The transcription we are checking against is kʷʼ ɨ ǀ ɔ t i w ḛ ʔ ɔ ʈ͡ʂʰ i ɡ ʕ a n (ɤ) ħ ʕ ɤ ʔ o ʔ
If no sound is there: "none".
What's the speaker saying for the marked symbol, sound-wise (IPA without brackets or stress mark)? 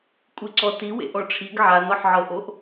ɔ